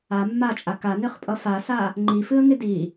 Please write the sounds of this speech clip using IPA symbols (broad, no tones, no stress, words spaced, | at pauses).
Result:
a mːat͡ʃʼa kanɨχpʼʌ fasa | ŋ͡ǃifɨə̯ŋɪ di